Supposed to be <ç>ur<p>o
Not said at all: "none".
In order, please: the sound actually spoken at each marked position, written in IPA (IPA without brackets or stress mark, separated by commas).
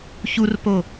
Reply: ç, p